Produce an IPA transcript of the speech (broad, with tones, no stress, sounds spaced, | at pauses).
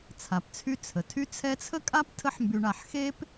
t͡sʰ a˩ p t͡sʰ y˦ t͡sʰ ə˩ tʰ y˦ t͡sʰ ɛ˦ t͡sʰ ə˥ kʼ a˥ p tʰ ə˦ ħ m b y˨ ɳ a˨ ħ x e˦ p